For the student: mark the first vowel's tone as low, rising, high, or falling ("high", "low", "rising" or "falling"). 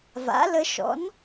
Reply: rising